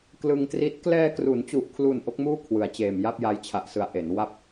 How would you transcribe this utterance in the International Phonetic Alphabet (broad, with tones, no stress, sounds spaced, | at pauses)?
k l ɯ˧ ŋ t r i˦˥ t̚ k l ɛː˧ k r u˩˦ n t͡ɕ u˨˩ ʔ kʰ l u˨˩ n ʔ o˦˥ k̚ m uː˥˩ kʰ w ɯ˩˦ a̯ t͡ɕ eː˨˩ m j a˥˩ p̚ j a˧ j t͡ɕʰ a˨˩ ʔ s ɯ˩˦ a̯ ʔ e˩˦ n w a˥˩ p̚